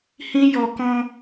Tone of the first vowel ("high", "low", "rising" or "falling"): high